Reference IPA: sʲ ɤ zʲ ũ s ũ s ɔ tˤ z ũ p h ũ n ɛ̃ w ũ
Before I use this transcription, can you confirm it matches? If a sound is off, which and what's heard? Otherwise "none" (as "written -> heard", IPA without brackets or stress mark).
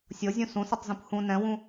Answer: none